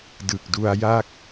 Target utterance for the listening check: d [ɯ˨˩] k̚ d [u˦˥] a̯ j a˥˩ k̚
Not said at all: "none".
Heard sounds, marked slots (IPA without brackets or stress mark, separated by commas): ɯ˨˩, u˧